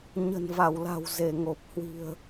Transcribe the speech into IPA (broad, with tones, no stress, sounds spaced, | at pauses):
ɲ ə̤˨˩ n v a˧˩ w l a̤˨˩ w z e˧˩ ŋ o˨˩ p̚ h w i̤˨˩ ə̯